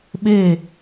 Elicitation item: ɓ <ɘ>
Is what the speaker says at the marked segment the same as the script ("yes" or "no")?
yes